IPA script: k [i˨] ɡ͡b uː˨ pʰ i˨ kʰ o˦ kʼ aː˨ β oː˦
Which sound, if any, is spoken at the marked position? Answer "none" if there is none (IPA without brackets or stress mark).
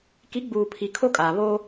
i˨˦